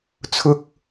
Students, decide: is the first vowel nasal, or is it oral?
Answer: oral